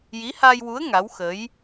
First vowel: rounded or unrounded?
unrounded